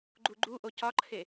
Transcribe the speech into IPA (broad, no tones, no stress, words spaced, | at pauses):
ɡ͡ǃuɡ͡ǃuʔo cɒǃʰe